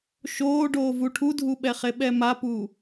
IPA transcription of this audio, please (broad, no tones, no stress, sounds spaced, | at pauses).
ʃ oː ɖ oː v u ʈʰ u dʱ u ɓ ɛ χ e ɓ ɛ m a p uː